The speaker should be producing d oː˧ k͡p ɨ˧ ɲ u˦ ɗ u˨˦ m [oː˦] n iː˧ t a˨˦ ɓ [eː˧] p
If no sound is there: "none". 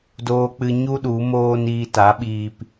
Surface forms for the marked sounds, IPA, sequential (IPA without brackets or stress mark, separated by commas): oː˦, iː˧